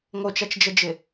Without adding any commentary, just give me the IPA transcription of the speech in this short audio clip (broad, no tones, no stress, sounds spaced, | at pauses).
ŋ o t͡ʃ a t͡ʃ d͡ʒ ə d͡ʒ ɪ